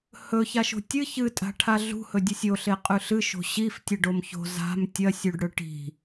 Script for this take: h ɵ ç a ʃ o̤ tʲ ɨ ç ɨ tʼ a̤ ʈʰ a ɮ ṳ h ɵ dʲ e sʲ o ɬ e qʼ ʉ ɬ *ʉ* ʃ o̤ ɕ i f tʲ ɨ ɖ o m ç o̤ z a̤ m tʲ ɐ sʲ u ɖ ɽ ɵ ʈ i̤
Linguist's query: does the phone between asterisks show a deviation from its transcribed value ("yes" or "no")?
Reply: yes